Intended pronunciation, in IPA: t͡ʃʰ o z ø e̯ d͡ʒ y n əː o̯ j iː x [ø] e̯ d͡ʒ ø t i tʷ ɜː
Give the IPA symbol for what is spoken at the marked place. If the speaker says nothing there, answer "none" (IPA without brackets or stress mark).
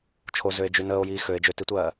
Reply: ø